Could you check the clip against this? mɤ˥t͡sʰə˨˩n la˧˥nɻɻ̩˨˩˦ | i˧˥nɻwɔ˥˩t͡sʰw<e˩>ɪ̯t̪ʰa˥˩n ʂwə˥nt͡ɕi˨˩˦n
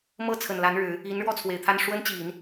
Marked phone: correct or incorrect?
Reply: correct